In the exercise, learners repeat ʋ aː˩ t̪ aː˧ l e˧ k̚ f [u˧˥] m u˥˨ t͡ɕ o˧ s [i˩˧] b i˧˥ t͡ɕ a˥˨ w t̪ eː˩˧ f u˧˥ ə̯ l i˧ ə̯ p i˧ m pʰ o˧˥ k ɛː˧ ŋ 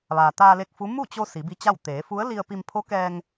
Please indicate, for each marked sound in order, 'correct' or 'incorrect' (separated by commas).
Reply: correct, correct